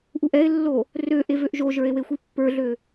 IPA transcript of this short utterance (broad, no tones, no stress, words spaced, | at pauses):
ʔuʔɛe̯lːo | rø ʔevøʔʒoʒə˞e̯ wexʷipːə˞ɮø